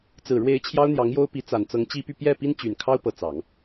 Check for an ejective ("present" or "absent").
absent